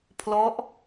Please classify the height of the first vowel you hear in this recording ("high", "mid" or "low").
mid